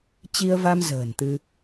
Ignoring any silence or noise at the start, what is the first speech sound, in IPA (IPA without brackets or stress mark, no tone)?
t͡ɕ